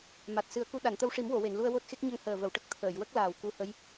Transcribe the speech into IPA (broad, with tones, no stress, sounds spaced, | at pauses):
m a˨˩ t̚ s ɨ˨˩˦ ə̯ k u˧ ɗ a˨˩˨ n t̪ ə˧ w ʂ i˨˩˦ m w o˨˩˨ w e˨˩˨ n l u˧ ə̯ w o˦˥ t̚ x e˦˥ k̚ ɲ ə˧ ŋ h əː˨˩ v ə˨˩˨ w ʈ ə˨˩ k̚ t̪ʰ əː˨˩˨ j w ə˦˥ k̚ l aː˨˩ w k u˧ h ə˧˥ j